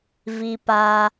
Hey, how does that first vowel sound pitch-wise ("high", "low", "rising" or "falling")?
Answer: high